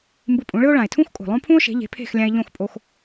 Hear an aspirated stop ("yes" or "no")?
yes